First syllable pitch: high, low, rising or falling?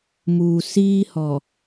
low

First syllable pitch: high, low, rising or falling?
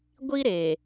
high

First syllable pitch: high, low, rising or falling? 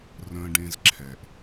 low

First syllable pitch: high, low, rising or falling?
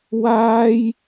high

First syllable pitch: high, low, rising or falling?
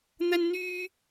high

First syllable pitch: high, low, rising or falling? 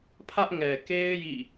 high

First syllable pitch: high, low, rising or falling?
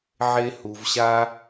high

